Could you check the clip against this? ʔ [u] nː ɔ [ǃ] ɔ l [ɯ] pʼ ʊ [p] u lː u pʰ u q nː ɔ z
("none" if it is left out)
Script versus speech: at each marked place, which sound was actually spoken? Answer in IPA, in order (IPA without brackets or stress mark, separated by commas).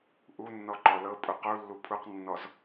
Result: u, ǃ, ɤ, q